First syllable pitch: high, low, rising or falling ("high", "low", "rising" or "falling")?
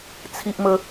high